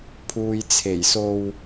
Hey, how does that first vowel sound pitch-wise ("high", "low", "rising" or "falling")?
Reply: low